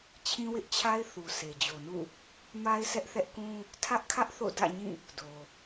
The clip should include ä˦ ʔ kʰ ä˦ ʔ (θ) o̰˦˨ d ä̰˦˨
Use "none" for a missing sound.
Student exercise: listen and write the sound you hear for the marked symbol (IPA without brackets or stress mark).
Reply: θ